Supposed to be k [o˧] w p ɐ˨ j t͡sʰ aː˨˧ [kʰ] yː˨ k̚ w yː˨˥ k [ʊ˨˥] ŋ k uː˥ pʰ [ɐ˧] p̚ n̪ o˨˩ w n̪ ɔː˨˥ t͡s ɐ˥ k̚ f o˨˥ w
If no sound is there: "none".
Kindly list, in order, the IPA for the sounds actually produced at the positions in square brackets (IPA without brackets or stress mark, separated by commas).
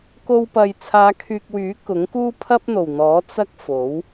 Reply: o˧, kʰ, ʊ˨˥, ɐ˥